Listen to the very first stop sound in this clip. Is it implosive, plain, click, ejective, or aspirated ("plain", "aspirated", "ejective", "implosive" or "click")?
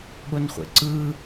implosive